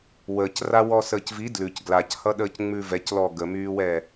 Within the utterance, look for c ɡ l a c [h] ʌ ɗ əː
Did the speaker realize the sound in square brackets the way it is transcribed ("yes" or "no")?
yes